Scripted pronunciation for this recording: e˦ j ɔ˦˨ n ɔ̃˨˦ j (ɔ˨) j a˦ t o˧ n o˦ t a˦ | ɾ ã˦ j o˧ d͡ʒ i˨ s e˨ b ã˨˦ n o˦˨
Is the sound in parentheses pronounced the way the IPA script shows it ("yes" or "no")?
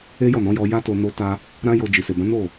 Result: no